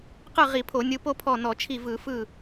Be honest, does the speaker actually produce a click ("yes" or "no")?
no